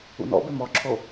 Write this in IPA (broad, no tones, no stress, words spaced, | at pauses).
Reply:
ṵnɔ̰be mɔǁʰo